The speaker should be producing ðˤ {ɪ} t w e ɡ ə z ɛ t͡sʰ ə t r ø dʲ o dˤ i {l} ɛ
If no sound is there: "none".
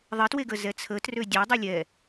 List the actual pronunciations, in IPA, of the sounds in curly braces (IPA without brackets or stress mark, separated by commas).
ɪ, lʲ